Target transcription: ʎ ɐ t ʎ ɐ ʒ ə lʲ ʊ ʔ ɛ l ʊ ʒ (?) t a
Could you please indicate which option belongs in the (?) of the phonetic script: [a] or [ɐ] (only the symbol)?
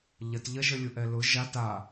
a